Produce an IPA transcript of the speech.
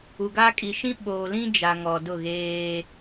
u˨ ɡ a˦ kʼ i˨ ʃ ĩ˦ ɓ oː˨ l ĩ˦ d͡ʒ a˨ ŋ ɔ˨ d ʊ˦˨ ɣ eː˦

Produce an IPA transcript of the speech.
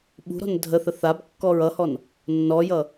ɓ ṳ ɾ ɔ̤ n dʱ ə θ ə θ a b kː ɔ ɹ ʌ h ɔ n | nː ɔ j ʌ

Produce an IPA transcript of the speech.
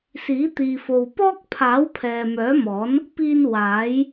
s iː˨˥ t̪ iː˨ f o˨ w p ɔː˥ k̚ pʰ aː˨˥ w pʰ ɛː˨ m œː˨˥ m ɔː˨˥ n | p iː˧ n w aː˨˥ j

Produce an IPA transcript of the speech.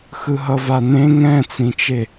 x ɯ ɦ ʌ v a n ẽ ŋ ɛ̃ t͡s ĩ t͡ʃ e

